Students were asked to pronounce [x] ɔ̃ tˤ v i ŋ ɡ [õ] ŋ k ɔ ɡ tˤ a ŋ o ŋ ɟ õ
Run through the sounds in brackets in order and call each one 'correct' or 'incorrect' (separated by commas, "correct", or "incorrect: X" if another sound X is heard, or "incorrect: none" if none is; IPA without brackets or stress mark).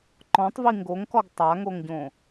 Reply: incorrect: ǃ, incorrect: o